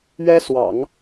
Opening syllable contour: high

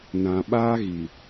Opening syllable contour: low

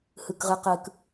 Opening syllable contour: high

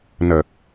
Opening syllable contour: low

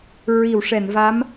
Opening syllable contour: low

